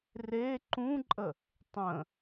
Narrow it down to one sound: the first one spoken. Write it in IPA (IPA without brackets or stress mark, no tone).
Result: r